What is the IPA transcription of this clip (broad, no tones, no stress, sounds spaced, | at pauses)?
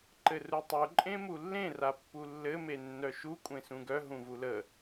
ǃ ɘ r u tˤ u ǃʼ ẽ m u lː ẽ r a pː u lː ɘ m e nː œ ʃ u kʷʼ ẽ s ũ ɡ œ ɦ ũ v u l ə